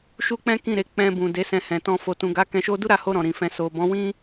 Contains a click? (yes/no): no